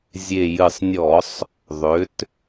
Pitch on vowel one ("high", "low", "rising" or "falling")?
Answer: low